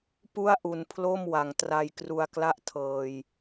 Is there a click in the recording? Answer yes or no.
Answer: no